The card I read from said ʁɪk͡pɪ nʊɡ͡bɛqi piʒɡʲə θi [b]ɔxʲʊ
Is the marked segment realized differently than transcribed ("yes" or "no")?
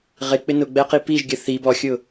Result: no